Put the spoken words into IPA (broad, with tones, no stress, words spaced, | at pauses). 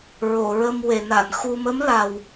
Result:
ɹo˨˩˨ɹə˧m we˨˩˨na˨˩˨nxu˧ mə˧˥mla˨˩w